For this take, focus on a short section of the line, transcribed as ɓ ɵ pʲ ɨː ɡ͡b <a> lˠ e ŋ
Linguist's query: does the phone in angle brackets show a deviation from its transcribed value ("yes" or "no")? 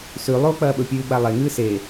no